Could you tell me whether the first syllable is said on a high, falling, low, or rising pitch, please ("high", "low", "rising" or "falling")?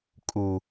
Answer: low